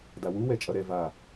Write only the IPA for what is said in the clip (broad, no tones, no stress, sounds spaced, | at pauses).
d a w u w ɛ t͡ʃʼ ʌ ɾ ɛ v a